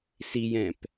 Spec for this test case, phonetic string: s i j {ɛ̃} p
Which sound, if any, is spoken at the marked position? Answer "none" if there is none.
ɛ̃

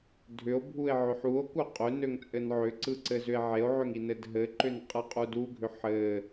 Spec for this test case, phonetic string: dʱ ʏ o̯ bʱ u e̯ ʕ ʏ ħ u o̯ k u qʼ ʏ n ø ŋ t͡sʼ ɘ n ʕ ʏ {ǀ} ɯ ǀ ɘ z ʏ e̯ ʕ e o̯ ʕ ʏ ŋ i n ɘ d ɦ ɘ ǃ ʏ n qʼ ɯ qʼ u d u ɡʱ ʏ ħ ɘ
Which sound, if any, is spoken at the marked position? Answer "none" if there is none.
ǀ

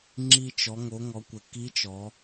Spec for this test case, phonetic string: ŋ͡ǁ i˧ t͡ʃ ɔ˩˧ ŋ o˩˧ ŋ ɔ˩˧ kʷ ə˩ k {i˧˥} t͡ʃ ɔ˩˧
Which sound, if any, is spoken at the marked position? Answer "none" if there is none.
i˧˥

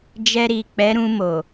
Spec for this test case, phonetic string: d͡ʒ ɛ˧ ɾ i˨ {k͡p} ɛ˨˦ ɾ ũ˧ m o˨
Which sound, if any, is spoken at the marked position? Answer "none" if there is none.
k͡p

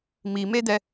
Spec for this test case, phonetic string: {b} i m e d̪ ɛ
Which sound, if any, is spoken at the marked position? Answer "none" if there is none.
m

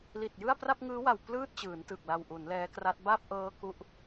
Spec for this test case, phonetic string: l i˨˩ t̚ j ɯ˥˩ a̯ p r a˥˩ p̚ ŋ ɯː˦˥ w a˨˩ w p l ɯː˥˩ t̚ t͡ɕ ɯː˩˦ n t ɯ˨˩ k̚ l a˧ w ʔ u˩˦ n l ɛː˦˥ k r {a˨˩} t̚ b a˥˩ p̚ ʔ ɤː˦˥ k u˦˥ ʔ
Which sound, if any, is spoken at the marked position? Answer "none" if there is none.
a˦˥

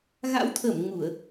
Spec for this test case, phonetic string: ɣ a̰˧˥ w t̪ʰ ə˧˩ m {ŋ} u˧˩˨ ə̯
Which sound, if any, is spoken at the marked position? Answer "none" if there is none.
ŋ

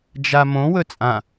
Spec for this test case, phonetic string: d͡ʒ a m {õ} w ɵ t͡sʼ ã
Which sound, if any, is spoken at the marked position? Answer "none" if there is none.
õ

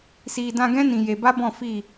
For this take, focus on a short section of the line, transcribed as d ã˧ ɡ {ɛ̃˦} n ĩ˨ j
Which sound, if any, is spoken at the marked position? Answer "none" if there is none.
ɛ̃˦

